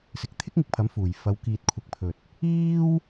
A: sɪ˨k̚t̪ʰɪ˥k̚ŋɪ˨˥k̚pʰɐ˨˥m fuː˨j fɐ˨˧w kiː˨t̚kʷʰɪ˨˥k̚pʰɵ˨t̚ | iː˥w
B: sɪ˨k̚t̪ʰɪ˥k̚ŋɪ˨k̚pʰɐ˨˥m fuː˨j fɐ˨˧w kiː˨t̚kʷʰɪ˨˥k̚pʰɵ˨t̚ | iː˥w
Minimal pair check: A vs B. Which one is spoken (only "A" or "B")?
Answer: B